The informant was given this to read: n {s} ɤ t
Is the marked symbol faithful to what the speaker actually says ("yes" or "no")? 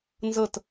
no